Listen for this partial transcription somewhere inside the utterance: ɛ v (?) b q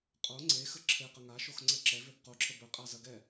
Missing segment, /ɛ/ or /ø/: ø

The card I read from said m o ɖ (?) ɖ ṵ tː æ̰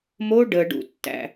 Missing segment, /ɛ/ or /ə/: ə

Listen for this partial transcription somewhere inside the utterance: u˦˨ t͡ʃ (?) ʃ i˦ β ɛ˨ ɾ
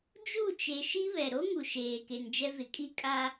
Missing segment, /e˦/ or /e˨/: e˨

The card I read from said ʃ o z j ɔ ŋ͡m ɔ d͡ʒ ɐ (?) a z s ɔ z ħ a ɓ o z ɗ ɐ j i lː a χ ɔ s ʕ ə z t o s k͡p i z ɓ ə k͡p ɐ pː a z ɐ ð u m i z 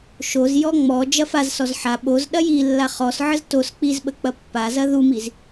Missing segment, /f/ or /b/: f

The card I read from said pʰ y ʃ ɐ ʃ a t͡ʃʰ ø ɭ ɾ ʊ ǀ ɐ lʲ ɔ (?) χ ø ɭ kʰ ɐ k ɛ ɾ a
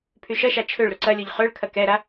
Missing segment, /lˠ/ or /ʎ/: ʎ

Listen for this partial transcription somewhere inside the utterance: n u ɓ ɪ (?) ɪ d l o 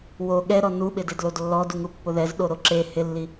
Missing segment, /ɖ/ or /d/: d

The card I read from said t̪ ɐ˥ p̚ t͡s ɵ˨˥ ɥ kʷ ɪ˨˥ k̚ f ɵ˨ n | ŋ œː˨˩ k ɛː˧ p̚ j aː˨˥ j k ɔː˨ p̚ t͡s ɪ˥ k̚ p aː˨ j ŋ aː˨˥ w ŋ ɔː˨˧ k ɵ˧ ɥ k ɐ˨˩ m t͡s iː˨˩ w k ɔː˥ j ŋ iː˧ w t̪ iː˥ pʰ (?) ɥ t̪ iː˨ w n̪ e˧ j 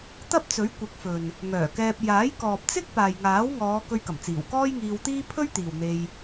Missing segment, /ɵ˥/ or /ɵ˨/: ɵ˥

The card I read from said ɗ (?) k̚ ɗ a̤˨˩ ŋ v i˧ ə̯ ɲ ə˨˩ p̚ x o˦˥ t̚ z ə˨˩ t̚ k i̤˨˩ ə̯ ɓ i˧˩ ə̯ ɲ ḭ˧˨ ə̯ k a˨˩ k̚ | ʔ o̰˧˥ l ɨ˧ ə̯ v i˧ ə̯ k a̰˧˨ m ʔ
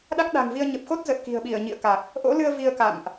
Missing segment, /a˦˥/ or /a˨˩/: a˦˥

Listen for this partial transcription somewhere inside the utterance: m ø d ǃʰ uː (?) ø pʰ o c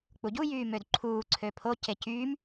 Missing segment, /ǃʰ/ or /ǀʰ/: ǀʰ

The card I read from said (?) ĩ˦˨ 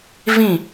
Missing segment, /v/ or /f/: v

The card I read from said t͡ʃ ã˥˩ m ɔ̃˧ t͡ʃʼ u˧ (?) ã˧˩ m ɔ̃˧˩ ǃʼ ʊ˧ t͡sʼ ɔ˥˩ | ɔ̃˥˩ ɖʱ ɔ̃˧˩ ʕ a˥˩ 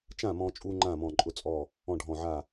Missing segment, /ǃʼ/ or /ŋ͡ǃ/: ŋ͡ǃ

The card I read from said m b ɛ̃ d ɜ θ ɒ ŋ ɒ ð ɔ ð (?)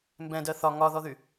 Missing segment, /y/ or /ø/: y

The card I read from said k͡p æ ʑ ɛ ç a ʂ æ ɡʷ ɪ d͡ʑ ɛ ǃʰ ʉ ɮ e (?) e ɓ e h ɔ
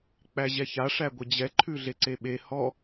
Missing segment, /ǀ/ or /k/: ǀ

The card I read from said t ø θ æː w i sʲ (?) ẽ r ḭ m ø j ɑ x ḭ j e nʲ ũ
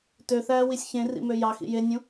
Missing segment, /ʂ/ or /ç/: ç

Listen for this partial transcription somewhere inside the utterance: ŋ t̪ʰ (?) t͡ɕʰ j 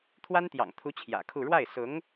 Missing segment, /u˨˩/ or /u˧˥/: u˧˥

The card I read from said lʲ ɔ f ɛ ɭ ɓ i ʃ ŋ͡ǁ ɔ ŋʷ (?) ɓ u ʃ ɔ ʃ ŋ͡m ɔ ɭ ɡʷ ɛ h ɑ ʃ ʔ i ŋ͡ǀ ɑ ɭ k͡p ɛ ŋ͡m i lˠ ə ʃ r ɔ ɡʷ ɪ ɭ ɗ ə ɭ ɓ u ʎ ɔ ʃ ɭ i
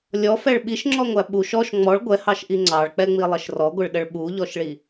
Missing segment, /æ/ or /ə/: æ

